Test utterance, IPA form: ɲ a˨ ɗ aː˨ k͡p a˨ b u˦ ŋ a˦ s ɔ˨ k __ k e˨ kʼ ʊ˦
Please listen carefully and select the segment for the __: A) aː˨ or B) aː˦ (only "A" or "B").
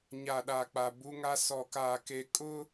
A